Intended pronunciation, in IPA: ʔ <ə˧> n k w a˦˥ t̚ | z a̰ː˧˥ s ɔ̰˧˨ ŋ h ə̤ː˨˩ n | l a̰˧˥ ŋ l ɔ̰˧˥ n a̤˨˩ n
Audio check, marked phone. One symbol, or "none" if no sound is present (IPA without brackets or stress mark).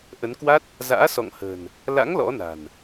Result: ə˨˦